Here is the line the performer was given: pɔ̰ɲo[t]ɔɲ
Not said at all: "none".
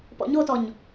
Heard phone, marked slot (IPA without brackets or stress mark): t